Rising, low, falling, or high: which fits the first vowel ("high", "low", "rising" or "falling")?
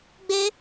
high